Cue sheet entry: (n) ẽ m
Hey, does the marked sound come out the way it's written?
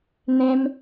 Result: yes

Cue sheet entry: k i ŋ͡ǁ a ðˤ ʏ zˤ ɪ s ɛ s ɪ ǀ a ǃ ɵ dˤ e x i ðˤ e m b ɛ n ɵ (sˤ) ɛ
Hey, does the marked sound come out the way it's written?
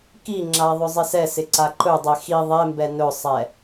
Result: yes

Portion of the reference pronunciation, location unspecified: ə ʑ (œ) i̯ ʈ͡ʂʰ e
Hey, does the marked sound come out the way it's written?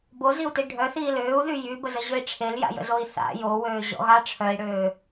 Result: no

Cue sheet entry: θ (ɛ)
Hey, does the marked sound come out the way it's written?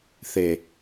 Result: no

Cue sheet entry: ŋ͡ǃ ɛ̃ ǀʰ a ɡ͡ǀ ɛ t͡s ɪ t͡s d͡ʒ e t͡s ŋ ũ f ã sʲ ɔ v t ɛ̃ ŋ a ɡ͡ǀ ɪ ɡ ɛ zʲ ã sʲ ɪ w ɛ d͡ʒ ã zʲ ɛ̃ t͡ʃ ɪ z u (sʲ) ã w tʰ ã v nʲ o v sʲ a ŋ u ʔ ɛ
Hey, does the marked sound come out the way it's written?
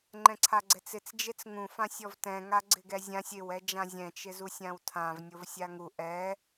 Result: yes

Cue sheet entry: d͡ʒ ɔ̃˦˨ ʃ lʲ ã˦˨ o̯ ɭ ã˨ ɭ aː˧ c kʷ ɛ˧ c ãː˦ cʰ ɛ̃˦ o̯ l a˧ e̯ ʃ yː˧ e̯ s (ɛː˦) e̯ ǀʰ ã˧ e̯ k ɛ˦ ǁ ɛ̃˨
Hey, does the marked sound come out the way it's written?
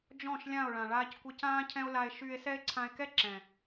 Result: no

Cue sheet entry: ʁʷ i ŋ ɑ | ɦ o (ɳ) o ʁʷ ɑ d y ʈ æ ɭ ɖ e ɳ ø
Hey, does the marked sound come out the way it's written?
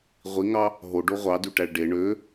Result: no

